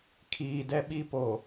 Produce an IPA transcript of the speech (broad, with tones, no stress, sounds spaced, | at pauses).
kʰ iː˨ d ɛ˦ ɓ i˦ p o˨